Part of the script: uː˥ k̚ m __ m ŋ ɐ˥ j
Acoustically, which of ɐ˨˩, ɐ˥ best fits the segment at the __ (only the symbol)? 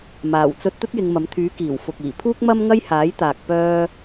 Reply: ɐ˥